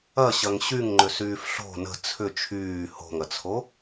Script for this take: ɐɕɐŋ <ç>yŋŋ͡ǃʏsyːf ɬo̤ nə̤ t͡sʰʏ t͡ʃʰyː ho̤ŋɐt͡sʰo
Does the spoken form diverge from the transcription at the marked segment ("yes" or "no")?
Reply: yes